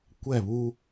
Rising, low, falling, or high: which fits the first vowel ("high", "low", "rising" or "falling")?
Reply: falling